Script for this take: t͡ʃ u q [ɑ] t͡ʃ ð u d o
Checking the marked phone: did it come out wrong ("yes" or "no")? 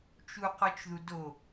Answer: yes